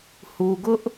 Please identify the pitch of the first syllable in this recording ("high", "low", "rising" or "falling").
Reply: low